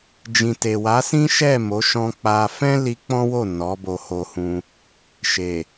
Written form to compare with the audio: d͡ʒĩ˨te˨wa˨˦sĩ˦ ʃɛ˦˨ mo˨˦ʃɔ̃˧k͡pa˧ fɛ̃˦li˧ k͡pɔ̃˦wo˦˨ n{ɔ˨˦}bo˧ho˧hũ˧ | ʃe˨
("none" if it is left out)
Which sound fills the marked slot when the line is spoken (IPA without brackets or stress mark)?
ɔ˨˦